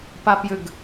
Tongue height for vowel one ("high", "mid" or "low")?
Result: low